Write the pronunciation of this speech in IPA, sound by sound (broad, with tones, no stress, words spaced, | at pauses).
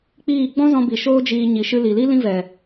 k͡piː˦˨ ɡ͡bɔ̃˦zɔ̃˧bi˨ ʃoː˦d͡ʒiː˧ ɲi˨ʃɨ˧li˨li˦ lĩ˦vɛ˨